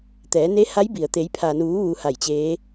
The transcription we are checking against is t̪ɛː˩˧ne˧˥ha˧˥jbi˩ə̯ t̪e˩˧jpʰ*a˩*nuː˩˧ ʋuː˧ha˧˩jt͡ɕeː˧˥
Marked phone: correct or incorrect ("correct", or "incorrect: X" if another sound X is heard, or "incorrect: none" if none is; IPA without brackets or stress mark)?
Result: correct